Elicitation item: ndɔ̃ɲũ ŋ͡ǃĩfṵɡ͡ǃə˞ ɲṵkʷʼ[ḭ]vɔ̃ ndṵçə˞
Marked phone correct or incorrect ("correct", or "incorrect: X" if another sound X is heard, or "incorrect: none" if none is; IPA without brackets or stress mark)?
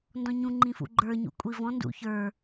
incorrect: i